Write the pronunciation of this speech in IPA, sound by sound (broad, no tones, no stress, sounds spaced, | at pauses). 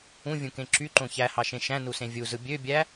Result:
ũ vʲ ũ k ẽ ǁ y ǃ õ ç æ h ɑ ʃ ẽ ʃ æ̃ n u s ẽ vʲ u z ɯ bʲ ø bʲ æ